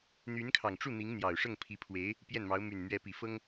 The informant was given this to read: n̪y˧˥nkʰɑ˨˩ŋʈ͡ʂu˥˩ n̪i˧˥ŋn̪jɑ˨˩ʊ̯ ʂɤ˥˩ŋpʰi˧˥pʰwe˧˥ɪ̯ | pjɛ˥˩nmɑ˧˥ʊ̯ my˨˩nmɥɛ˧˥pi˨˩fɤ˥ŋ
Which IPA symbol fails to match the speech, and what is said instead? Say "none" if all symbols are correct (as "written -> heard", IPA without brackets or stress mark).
none